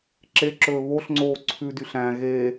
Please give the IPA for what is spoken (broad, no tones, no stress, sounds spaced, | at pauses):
ǁ e ǁ ɵː β o ɬ ŋ͡ǀ oː ǀʰ ʉ d y ɬ æ̃ ɣ e